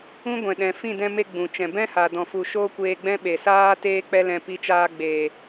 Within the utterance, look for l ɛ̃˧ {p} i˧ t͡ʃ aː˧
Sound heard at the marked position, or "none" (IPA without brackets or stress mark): p